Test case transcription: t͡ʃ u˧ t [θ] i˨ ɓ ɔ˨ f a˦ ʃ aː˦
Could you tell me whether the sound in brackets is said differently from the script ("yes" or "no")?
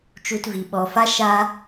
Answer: yes